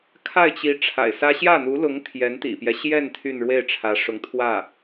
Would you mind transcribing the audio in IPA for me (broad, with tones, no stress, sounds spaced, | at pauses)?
kʰ a˥˩ ɪ̯ t͡ɕ i˧˥ ʈ͡ʂʰ a̰˨˩ ɪ̯ s ä˥ ɕ j ä˥˩ n̪ u˧˥ l ʊ˧˥ ŋ t̪ʰ j ɛ˧˥ n t̪ ḭ˨˩ p j ɛ˦ ɕ j ɛ˥˧ n t̪ʰ y˥˧ n ɻ w e˥˩ ɪ̯ ʈ͡ʂʰ ä˧˥ ʂ ʊ˧˥ ŋ t̪ʰ w ä˥˩